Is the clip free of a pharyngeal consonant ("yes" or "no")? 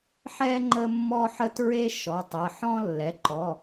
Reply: no